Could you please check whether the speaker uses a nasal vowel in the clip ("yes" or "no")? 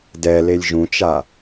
yes